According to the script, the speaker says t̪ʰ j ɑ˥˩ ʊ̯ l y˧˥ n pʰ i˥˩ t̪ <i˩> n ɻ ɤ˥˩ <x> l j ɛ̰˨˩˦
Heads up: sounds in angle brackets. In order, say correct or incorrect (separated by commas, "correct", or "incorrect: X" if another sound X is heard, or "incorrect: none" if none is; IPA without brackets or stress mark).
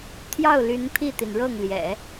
correct, incorrect: ŋ